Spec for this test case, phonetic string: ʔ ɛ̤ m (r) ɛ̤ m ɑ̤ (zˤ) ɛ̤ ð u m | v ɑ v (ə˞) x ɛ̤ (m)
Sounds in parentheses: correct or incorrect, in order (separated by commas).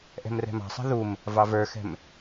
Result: correct, incorrect, correct, correct